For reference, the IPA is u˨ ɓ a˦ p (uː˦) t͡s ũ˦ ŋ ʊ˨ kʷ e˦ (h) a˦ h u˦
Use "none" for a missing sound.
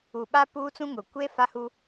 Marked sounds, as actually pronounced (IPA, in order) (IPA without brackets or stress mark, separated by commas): uː˦, f